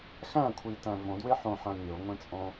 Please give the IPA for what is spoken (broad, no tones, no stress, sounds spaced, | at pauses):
x æ̃ kʷʰ i t æ̃ v õ d w e ħ õ ħ æ̃ mʲ o ŋʷ ẽ t͡sʼ õ